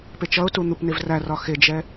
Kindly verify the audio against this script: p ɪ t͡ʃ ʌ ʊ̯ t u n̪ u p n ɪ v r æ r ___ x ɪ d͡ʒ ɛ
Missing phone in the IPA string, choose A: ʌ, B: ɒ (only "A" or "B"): B